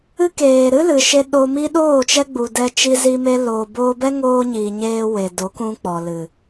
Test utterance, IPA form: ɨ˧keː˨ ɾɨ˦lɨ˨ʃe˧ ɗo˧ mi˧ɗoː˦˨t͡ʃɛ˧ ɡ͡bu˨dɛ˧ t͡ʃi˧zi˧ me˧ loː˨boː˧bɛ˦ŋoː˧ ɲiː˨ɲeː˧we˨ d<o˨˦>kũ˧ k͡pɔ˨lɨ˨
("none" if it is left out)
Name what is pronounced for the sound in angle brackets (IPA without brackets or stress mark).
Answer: o˨˦